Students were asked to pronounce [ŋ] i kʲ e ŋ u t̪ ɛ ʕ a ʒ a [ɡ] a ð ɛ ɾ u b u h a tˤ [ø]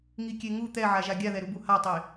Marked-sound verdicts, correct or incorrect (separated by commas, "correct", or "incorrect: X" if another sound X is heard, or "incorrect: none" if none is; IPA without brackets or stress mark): correct, incorrect: ɡʲ, incorrect: e